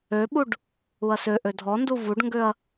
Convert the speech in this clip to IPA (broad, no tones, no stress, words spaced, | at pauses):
øɓuɖ | uɐ̯søʔø dʱɔndu vuɖŋɡøɐ̯